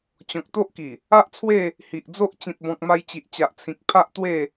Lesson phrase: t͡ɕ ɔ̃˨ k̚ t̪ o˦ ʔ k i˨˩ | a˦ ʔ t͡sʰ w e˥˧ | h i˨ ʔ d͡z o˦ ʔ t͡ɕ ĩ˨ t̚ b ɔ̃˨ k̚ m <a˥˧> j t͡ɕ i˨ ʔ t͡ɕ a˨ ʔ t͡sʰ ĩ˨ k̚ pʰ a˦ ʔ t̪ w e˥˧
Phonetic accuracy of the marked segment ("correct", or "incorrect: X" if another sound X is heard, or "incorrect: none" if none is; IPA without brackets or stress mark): incorrect: a˧